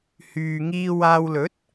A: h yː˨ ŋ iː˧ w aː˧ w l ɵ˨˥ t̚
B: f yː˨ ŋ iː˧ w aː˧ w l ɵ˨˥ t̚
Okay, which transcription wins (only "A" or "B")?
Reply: A